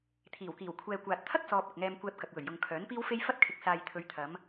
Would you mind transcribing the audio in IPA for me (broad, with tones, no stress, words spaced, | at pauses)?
t̪ʰiː˨˩wkiː˨˩w kʷʰɛː˨kʷaː˨t̚t̪ʰɐ˥k̚ sɔː˧p̚ɐ˨k̚ŋɛː˧m kʷɛː˧p̚kɐ˨k̚wɵ˨˩ɥ jʊ˨ŋkʰœː˨˥npiː˥wfe˥j fɐ˥t̚kʰɪ˨k̚saː˨j t̪ʰɵ˨˧ɥt̪ʰɐ˨˧m